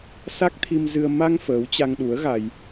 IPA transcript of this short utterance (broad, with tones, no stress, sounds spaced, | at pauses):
s a˦˥ k̚ t̪ʰ i˧ m z ɨ˧ ə̯ m a˧ ŋ f əː˨˦ w t͡ɕ a˧ ŋ ɗ u˨˦ ə̯ ɣ a˧ j